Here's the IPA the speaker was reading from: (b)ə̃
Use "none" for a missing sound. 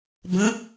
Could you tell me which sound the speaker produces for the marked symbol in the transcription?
b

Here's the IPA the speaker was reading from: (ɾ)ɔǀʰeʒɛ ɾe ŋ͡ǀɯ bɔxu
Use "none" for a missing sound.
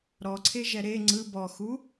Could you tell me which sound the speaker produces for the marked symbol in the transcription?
ɾ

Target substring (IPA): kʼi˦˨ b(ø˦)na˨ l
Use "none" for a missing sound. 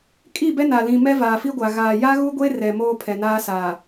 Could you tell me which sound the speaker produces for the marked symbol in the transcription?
ɛ˦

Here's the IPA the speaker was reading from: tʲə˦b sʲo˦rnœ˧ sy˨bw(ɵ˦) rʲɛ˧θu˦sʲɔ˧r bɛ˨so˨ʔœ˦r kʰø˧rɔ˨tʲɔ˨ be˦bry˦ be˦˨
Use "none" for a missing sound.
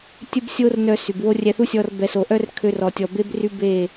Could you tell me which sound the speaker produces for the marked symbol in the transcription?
o˦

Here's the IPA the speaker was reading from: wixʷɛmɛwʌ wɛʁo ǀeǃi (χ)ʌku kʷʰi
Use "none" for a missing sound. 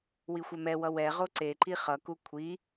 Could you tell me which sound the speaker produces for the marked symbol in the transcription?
χ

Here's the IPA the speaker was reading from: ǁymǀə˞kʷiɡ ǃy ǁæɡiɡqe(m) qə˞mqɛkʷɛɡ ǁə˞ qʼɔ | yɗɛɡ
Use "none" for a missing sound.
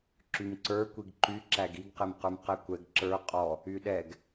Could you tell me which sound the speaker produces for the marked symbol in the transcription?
m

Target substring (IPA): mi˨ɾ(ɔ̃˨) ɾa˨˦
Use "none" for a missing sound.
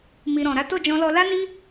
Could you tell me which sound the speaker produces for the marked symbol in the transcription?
ɔ̃˨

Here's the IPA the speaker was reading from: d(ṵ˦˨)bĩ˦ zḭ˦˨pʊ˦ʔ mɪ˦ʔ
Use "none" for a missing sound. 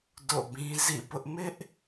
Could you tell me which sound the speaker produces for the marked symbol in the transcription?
o̰˦˨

